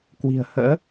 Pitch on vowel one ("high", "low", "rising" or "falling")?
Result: low